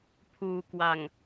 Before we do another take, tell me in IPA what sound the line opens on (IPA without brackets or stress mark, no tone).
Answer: pʰ